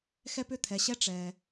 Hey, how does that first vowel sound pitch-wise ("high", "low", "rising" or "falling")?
high